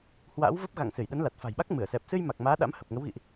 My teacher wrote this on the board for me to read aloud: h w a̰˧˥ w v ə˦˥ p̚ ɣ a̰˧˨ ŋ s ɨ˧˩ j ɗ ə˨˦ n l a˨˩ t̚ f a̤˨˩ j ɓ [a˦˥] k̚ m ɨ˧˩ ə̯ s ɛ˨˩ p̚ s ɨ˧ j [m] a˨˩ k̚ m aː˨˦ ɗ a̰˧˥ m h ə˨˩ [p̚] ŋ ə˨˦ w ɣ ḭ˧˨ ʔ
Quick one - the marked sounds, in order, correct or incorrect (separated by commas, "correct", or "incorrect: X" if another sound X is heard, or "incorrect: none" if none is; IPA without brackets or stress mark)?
correct, correct, correct